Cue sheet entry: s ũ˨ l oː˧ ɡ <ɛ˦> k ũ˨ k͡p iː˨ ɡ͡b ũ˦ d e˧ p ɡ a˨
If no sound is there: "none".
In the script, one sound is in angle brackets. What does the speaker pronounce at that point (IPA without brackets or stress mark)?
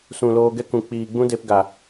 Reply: ɛ˦